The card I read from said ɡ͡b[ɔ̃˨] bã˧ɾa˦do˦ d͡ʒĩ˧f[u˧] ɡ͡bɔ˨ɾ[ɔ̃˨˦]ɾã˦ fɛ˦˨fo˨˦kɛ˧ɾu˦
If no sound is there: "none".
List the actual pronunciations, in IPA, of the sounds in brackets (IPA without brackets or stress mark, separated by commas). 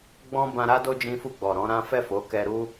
ɔ̃˦, u˧, ɔ̃˨˦